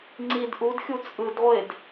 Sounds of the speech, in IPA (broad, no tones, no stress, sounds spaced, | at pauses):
ŋ͡ǀ i d ʔ u d xʲ u t͡sʼ ɯ d ʁʷ e d